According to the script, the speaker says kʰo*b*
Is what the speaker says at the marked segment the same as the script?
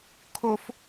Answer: no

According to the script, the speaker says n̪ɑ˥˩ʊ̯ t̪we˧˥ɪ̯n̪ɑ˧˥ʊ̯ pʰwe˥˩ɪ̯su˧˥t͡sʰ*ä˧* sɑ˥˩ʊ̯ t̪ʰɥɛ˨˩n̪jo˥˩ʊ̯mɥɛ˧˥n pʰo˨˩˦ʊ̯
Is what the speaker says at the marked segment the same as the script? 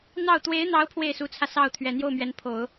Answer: yes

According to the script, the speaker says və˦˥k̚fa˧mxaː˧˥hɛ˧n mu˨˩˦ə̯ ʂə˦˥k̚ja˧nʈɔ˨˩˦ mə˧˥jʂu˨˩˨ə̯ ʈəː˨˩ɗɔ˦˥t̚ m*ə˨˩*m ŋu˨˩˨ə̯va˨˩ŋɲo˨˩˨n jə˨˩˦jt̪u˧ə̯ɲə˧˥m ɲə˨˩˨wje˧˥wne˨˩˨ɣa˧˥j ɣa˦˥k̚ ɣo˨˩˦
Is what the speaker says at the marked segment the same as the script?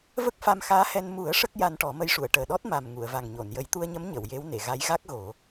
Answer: no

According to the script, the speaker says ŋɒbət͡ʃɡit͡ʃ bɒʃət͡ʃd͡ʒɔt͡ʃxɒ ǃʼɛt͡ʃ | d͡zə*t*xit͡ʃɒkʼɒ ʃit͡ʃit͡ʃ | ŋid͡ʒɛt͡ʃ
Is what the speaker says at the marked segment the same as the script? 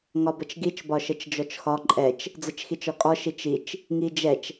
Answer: no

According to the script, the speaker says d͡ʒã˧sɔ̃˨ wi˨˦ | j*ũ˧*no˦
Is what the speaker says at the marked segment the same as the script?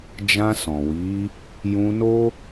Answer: yes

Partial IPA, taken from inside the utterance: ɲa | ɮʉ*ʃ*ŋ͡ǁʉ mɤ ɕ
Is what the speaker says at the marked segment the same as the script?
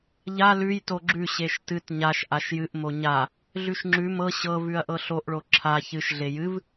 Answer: yes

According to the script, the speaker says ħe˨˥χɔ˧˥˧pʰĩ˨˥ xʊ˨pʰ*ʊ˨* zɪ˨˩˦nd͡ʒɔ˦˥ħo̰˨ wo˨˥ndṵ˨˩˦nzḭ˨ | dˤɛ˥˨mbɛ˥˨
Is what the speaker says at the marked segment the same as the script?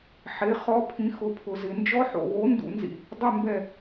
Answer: yes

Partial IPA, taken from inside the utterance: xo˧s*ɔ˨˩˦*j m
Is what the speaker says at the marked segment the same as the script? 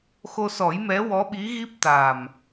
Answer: yes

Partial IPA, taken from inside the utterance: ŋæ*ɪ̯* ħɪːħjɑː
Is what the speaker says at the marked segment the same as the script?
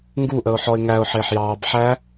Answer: no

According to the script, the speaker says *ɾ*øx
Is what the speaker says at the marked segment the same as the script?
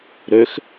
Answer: yes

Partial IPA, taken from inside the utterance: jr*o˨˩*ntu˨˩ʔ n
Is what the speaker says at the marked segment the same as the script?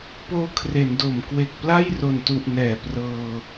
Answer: yes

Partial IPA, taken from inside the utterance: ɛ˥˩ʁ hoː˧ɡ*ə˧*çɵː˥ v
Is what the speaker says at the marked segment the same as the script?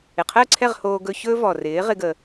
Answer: no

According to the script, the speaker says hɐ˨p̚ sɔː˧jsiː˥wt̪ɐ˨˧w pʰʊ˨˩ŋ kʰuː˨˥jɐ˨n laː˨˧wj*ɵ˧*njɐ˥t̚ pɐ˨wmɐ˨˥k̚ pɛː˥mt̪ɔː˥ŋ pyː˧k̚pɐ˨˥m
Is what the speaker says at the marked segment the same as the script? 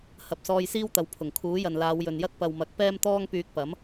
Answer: no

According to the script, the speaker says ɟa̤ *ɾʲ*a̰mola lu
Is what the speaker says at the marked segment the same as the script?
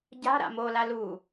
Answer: no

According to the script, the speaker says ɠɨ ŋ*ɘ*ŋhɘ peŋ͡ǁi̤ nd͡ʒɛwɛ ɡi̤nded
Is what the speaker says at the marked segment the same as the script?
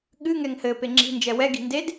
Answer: no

